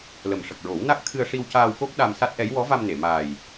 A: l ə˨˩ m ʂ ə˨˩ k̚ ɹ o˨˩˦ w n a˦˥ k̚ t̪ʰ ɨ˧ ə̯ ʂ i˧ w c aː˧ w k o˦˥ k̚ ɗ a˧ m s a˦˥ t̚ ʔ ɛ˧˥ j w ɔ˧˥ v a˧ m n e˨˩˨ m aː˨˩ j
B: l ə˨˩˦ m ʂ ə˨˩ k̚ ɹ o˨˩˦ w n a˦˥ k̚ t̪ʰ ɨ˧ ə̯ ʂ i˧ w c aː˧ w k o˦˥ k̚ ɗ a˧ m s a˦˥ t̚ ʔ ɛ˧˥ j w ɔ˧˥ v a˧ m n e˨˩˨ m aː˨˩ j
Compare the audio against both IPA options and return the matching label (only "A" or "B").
A